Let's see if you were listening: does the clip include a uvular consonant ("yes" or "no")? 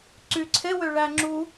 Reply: no